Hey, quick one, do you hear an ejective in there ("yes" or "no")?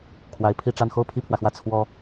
no